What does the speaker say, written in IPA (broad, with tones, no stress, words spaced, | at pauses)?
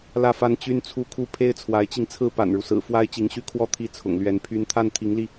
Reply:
lä˥˩fa˥nt͡ɕy˥n t͡sʰu˥˧kʰu˥˩ pʰe˥ɪ̯t͡sʰwa˧˥ɪ̯t͡ɕi˧ŋt͡sʰɹ̩˥ pa̰˨˩nɻu˦sɹ̩˨˩ fwa˥ɪ̯t͡ɕi˧˥ŋɕy˥˩kʰwɔ˥ t̪ʰi˥˩t͡sʰʊ̰˨˩ŋlɥɛ˧˥npʰy˥n t̪ʰa˥˩nt̪ʰi˧˥ŋli˧